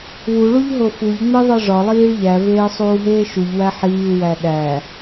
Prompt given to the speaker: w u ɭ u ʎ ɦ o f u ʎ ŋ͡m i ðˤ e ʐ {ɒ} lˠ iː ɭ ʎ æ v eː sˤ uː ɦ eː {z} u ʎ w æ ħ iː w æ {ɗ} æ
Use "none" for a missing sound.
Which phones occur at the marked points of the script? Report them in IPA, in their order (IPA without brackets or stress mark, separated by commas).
ɒ, ʃ, ɗ